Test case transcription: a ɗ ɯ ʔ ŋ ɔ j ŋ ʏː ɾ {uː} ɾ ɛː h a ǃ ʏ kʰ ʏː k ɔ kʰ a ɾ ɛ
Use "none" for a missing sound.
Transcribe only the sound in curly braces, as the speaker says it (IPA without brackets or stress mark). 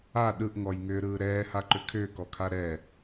ɯː